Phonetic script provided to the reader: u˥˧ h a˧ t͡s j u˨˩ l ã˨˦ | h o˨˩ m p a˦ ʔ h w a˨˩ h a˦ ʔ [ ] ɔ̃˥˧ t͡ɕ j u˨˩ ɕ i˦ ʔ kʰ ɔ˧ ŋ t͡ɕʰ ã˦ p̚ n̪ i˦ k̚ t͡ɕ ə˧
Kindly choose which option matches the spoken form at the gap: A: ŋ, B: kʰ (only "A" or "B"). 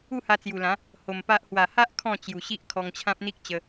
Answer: B